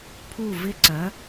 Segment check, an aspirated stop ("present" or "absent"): present